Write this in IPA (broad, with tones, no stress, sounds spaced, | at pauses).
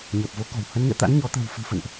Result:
ɲ əː˨˩ p̚ v o˨˦ k ɔ̤˨˩ w h ə˨˦ n ŋ ɛ̰˧˨ t̪ a̰˧˥ n ɲ ɔ˨˦ t̪ ə̤˨˩ w f ɨ̤˨˩ f ə̰˧˨ n ʔ